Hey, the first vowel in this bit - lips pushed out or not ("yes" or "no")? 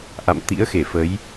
no